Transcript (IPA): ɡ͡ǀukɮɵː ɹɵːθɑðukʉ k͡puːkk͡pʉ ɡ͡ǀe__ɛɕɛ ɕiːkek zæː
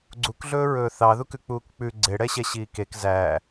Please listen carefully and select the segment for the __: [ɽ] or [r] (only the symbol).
ɽ